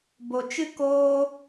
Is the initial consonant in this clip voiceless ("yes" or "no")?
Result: no